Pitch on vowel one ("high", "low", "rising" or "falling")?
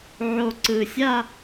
low